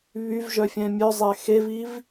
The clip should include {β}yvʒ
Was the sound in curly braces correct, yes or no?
yes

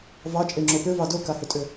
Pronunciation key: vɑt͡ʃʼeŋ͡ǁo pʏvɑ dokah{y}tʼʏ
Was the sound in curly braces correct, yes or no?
no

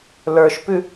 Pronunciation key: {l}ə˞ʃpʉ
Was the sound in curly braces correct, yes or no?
yes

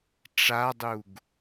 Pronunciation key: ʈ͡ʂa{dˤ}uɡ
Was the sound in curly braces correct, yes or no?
yes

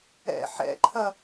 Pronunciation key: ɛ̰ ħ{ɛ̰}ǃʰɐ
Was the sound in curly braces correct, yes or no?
yes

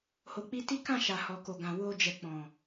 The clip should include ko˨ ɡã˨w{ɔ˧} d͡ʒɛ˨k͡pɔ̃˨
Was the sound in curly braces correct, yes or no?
no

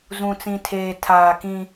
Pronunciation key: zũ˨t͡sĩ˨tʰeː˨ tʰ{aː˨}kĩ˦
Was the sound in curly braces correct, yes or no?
yes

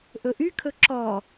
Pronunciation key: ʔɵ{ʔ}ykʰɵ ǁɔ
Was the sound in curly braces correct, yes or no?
yes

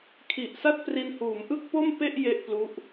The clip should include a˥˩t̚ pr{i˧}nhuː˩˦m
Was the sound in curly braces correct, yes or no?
yes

